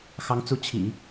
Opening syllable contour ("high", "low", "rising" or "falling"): rising